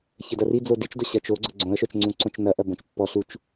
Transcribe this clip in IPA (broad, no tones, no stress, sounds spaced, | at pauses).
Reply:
ç ə d ɐ r i d͡z o d i t͡ʃ d ʊ ɕ ɐ t͡ʃ o ɡ͡ǀ ʊ ɡ͡ǀ õ ə̯ ʃ œ t͡ʃ ŋ͡ǀ ũ ǀ õ t͡ʃ n ɐ ʔ ɐ b õ t͡ʃ pː ɔ ɬ u t͡ʃ